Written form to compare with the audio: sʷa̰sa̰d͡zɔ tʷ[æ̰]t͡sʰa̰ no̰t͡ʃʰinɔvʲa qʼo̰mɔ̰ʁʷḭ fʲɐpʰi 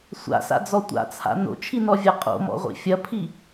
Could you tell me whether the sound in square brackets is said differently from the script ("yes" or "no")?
yes